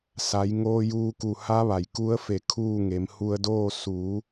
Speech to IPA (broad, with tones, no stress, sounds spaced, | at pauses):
s a˩˧ j ŋ oː˧ j uː˧ k u˧˩ h a˧˥ ʋ a˩ j k u˧˥ ə̯ f e˧˩ kʰ uː˥˨ ŋ e˩˧ m h u˧ ə̯ d oː˥˨ s u˩˧